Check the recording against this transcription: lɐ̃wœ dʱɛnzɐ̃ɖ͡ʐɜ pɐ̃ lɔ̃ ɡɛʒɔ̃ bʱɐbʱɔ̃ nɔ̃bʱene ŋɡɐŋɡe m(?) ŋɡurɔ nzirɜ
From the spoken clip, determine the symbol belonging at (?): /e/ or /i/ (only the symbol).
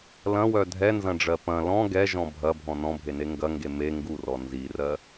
e